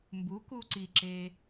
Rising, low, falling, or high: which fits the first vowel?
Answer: rising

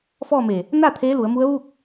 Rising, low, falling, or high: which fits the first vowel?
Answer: falling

